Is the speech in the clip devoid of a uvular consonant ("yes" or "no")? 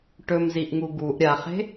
no